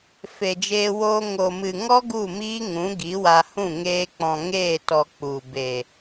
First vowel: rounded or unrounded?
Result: unrounded